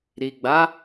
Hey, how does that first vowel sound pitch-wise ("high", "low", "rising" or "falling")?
low